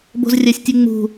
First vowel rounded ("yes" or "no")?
yes